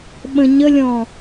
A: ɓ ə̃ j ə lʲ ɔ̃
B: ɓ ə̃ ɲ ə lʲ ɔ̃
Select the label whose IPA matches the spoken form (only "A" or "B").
B